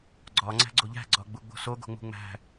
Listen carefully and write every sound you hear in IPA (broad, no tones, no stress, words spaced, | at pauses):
ɡ͡ǀɒ ŋ͡ǀæ̤ɡ͡ǀoʎæ̤ ɡ͡ǀɒɡ͡buɡ͡bo̤so ɡo̤ŋ͡mṳŋ͡mæ̤